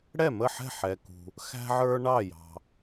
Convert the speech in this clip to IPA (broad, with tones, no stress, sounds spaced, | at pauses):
ɽ ɛ˥˩ m ə˥˩ ħ ɛ̤˥˩ ħ ɛ˩ k ṳ˩ | x æ̤˧ ʕ ə˞˧ ɳ ɑ˥˩ j ɑ̤˩